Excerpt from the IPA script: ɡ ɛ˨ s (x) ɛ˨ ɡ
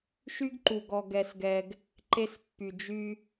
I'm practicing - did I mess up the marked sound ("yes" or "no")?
yes